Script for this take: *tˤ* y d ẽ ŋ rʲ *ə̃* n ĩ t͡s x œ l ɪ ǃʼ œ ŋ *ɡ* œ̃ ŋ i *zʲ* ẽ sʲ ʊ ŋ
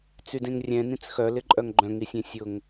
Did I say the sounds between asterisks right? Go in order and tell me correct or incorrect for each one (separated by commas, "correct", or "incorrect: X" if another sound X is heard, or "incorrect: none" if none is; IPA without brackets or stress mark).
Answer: incorrect: t͡s, incorrect: ɛ̃, incorrect: ɡ͡ǃ, incorrect: sʲ